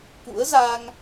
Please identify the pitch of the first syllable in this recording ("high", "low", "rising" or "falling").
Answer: rising